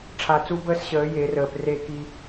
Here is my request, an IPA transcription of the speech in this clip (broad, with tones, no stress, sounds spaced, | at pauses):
ʈ͡ʂʰ a˨ t͡s u˦ b əː˦ s ɕ əː˨˦ j e˨˦ r əː˨ p r e˦˨ k i˦